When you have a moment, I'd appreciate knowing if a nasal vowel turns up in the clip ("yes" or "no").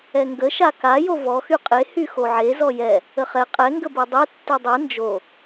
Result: no